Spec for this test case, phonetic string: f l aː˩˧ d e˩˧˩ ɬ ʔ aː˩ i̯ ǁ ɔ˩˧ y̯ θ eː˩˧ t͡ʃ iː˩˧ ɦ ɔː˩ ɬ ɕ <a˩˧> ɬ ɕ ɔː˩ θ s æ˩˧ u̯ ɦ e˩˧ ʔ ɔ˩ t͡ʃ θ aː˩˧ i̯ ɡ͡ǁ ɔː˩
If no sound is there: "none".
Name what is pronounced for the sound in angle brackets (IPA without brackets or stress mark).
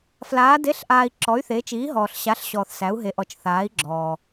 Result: a˩˧